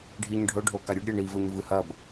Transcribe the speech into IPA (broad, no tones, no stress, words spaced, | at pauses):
ɖʱiɲɖʱɵɖʱo kaɾʲʉɖɾʲe ɳivɵɲ vɨhɐb